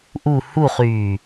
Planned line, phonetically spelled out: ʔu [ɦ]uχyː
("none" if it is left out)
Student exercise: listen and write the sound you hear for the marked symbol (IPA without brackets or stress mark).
h